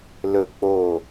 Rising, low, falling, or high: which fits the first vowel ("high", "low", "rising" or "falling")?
low